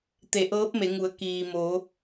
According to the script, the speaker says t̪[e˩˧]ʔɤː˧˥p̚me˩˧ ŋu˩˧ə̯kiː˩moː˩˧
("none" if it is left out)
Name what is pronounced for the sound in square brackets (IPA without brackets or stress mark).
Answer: e˩˧